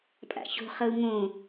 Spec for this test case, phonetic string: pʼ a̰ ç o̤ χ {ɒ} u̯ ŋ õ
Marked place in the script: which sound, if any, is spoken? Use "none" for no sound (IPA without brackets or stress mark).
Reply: ʌ